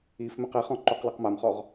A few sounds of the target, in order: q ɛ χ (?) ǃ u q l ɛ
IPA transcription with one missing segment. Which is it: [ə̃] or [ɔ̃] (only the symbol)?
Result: ɔ̃